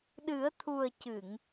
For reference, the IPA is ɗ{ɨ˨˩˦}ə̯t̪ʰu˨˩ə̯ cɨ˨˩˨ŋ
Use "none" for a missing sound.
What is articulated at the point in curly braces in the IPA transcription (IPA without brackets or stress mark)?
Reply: ɨ˨˩˦